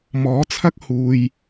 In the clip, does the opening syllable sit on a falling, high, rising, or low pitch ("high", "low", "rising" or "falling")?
rising